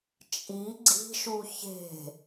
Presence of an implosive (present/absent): absent